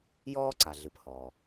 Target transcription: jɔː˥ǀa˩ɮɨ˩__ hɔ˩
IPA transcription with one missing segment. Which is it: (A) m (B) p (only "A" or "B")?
B